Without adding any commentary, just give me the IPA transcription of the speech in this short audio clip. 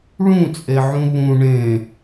ɭ ũ t͡sʼ e ʕ ũ β ũ ɳ ẽ

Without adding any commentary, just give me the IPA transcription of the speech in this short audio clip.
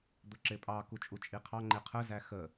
d̪ ʊ ǁ ɪ pʼ ɑ k u t͡ʃʼ u t͡ʃʼ i qʰ ɑ ŋ͡ǃ ɪ qʰ ə z æ x ə

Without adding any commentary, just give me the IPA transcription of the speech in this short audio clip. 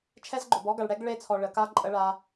t͡ʃʰ ɛ˦ z ɡ͡ǃ ʊ˨ b ɔ˦ ɡ a˨ ɭ ɽ ɛ˦ ɡ ɭ e˦˨ t͡sʰ ɔ˨ ɭ ə˨ k a˦ ǃʼ ə˦ ɭ a˦

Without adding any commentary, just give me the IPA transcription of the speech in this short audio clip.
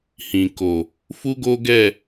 h ĩ˨ k o˨ | f u˦ ɡ o˦ ɡ ɛ˦˨

